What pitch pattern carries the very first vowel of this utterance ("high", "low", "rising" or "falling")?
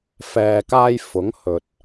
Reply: low